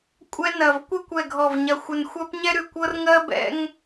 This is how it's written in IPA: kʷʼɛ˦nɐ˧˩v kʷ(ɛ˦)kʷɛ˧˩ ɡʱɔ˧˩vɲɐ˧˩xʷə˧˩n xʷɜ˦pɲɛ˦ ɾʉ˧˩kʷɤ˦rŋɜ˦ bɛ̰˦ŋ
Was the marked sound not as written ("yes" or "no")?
no